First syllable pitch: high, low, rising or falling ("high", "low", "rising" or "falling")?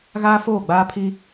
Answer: high